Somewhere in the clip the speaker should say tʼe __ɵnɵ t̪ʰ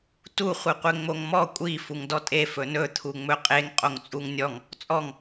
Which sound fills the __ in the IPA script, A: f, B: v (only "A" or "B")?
A